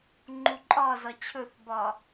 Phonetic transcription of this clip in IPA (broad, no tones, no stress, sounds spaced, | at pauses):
ŋ͡ǃ u ǃʼ ɒ z ɒ t͡ɕʰ ɵ θ b ɒ